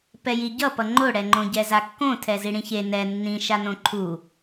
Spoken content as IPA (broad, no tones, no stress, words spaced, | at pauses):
pɛjiɟʌpʌ ŋ͡ǃoɽɛŋ͡ǃõɟɛ zakːõ tʰɛziɽĩçe nɛ nːĩʃanõ ǃʰu